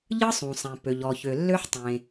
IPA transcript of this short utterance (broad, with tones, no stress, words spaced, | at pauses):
ʎɯ˥sˤũ˩sˤẽ˩ pø˩ʎɔ˩çø˩lːø˥ħ tˤẽ˩